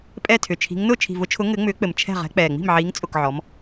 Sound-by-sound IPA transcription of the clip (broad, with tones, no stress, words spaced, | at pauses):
pʼɛ˦˨tʰʏ˨˩t͡ʃʰi̤˨˦ŋ nʊː˦˨t͡ʃʰi̤˨˩vʊ˨˦t͡ʃʰʊ˨˦ ŋɘ˨˦ ŋ͡mʏː˨˦k͡pɘ˨˩m t͡ʃʰɛ̤˦˨ʁɛ̤˨˦ k͡pɛː˨˩ŋ͡mi̤˦˨mʕiː˨˦ŋ t͡sʼʊ˦˨kʕɔ˨˦m